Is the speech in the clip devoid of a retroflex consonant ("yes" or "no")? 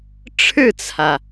no